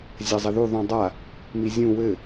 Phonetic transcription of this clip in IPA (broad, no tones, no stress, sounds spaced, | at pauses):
zʲ a zˤ ɘ ð u ðˤ ũ dˤ a | m i zʲ ũ w ɘ